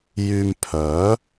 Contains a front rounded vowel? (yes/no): yes